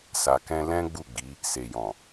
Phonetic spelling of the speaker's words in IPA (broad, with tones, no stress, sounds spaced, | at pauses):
s a˧ k ɛ̃˦ l ɛ̃˦ ɡ͡b u˦˨ ɡ͡b i˨˦ | s e˨ j ɔ̃˨